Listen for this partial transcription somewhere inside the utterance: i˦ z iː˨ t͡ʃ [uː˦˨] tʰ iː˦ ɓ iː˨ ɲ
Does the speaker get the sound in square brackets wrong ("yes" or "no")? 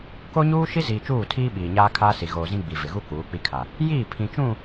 no